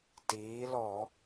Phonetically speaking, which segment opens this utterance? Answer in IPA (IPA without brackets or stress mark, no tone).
t